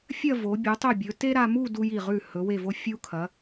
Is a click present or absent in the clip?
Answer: absent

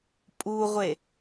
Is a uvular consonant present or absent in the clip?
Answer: present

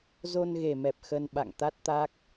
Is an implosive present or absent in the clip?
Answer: present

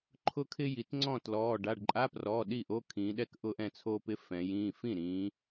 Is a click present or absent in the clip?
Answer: present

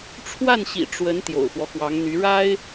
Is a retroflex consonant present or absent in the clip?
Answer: present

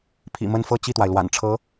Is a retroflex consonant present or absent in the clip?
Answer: present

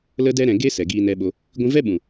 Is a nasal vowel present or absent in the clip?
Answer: present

